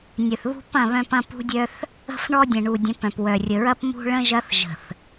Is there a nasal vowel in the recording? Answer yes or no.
yes